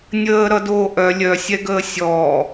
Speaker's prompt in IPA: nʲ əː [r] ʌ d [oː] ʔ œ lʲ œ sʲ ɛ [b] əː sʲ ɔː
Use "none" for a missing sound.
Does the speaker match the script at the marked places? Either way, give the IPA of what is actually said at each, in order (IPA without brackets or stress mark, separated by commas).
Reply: ɾ, oː, ɡ